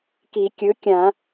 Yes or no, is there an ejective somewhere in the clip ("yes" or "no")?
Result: no